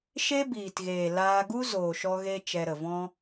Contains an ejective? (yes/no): no